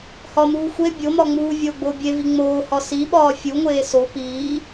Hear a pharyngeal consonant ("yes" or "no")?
no